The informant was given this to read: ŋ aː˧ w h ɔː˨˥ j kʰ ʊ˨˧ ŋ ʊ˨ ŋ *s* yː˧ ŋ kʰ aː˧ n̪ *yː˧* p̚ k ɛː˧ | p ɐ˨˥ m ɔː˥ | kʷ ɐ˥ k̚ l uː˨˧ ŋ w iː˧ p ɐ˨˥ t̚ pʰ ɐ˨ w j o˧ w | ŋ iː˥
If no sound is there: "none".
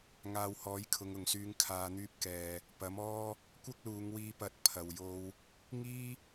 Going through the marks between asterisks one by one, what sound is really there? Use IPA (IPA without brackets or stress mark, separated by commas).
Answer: s, yː˥